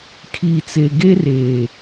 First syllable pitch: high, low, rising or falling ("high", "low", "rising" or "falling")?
low